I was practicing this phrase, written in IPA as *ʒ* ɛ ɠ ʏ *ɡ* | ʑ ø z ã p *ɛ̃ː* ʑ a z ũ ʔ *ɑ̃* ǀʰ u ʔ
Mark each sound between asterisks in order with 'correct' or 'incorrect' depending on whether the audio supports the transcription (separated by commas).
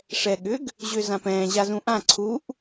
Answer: incorrect, correct, correct, incorrect